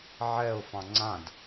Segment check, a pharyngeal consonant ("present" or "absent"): present